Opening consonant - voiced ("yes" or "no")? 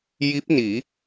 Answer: yes